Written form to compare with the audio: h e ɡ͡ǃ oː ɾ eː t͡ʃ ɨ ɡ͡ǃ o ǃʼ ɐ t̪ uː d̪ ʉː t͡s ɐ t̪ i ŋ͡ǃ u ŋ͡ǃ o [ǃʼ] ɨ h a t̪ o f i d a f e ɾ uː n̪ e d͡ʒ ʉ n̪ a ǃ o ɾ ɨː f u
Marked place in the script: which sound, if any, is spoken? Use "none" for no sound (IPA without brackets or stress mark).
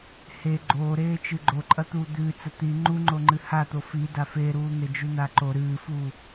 ŋ͡ǃ